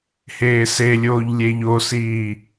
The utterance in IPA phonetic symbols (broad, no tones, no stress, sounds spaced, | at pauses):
h eː s e lʲ oː ʎ lʲ e ʎ o s iː